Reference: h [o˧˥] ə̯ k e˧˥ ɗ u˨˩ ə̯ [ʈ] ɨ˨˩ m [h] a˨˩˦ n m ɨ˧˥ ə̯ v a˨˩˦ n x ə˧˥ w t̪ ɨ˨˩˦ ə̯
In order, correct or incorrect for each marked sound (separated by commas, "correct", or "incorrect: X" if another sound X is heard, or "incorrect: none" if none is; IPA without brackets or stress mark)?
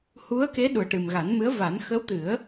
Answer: incorrect: u˧˥, correct, incorrect: ɣ